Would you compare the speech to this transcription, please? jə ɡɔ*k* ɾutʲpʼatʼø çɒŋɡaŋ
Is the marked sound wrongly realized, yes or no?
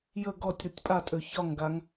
yes